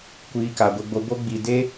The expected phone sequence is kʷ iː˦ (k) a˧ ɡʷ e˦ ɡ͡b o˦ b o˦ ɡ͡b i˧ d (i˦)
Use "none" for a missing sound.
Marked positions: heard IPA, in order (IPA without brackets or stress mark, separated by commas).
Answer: k, e˦